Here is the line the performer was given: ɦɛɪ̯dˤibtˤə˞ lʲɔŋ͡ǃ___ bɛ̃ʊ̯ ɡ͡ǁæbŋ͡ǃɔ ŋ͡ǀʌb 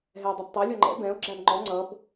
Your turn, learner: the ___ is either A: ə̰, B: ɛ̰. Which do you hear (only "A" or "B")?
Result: B